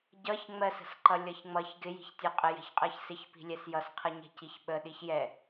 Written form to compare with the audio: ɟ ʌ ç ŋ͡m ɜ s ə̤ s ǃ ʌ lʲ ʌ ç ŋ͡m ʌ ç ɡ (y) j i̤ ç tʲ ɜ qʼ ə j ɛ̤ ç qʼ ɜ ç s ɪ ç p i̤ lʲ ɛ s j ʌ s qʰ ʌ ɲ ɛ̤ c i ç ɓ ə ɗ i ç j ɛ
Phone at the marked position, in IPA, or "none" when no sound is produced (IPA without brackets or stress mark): ɪ